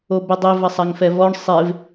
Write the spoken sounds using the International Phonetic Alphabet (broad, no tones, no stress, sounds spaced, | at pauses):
o b e dˤ i v ɐ sˤ a ŋ f ɛ v ɔ ɳ sˤ e v